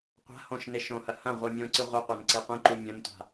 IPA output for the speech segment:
qʷa̤ hõʃne ʃõhɐ hɐ̃ ʁʷimʲõǀɨ ʁʷɨqʷan ǀeqʷĩǃu mʲɐ̃ntʷa̤

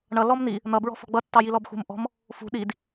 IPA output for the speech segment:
ɳʌ lɔmn̪i | n̪ʌbɹɔ̤ fɔ̤ɡ͡bʌtːɑ jilɔbxṳm ʔɔ̤m | fṳ ɗid

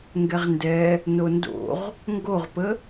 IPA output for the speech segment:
ŋɡɛʁndɛ | nondo̰ʁ | ŋɡoʁpə

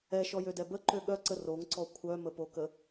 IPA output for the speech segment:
ɛʃɔjødɛ bəǃø ɠœǀə roŋǀɔ kʷʰœməpokə

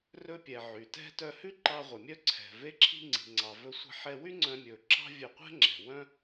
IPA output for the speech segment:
rɵ˧pʲɛ˩ ʕy˩tɛ̤˥ tœ˧hʉ˥ ǃɑ˧ʁʷœ˩ mʲœ˥ ǀʰɛ̤˩ ve˧ǁʰi̤˧ŋ͡ǀi̤˩ŋ͡ǀɑ˩ vɵ˧ sʷɛ̤˧ħɛ˧wy˥ ŋ͡ǀœ̃˧mʲɵ˩ ǁɑ̤˥vʲɵ˧qʷɛ̤˥ŋ͡ǁɛ̤˩ wœ̃˥

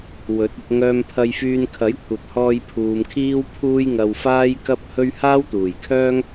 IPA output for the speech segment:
wɵ˨˥t̚ɪ˧k̚ ŋœː˧m pʰɐ˧jfyː˧n kʰɐ˨˥jkʷʰɐ˨p̚hɔː˧jpʰuː˨m kʰiː˥wpʰuː˥jŋɐ˧w faː˥jkɐ˥p̚hɵ˥ɥ haː˥wt̪uː˨˩jkʰœː˥ŋ

